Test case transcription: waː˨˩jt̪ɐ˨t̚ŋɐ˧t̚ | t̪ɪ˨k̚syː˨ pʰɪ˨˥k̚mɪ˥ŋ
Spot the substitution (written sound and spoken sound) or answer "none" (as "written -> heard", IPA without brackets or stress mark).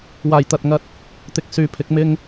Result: none